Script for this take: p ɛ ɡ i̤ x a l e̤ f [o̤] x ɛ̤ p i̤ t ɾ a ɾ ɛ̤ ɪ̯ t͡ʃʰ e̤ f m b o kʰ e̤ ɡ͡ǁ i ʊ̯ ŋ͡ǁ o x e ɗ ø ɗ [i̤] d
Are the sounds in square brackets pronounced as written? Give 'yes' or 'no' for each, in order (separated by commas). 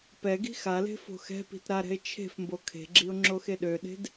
yes, no